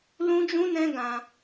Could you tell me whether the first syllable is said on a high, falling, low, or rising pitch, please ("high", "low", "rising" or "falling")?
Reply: high